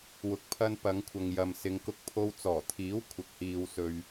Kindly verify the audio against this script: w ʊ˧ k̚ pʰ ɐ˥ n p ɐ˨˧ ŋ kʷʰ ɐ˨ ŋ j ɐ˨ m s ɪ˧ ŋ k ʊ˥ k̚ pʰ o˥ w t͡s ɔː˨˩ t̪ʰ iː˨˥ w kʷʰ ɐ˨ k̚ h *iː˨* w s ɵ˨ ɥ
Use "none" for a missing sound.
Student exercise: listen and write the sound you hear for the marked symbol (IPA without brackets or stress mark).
iː˨